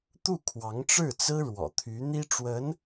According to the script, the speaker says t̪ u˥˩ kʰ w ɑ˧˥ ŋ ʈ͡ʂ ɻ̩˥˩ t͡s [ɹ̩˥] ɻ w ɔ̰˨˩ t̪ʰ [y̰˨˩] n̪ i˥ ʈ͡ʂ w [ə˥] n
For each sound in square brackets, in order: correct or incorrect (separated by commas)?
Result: correct, incorrect, incorrect